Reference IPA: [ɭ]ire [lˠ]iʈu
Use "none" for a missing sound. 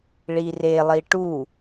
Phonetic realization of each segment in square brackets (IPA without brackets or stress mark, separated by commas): ɭ, lˠ